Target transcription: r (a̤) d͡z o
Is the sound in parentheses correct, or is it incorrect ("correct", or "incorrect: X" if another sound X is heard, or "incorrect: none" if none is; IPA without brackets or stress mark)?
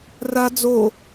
incorrect: a